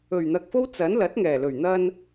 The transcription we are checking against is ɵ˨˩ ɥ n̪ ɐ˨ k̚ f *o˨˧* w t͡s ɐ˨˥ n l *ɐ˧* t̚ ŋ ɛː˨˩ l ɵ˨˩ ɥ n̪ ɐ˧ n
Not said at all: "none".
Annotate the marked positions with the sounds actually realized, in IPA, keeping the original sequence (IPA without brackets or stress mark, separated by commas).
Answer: o˥, ɐ˨˥